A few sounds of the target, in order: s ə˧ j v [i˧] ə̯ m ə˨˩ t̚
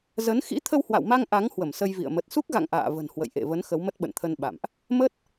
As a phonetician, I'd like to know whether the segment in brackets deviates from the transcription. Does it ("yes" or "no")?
yes